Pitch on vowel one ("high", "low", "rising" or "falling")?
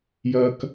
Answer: high